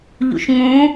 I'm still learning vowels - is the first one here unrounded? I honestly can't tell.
no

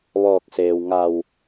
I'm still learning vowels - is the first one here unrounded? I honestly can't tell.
no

